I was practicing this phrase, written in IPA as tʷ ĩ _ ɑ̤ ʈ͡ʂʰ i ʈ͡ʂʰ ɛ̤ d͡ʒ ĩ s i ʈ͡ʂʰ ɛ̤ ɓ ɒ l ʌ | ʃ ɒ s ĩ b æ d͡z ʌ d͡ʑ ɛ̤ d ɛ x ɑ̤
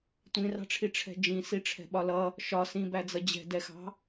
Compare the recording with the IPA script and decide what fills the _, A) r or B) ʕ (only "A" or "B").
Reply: A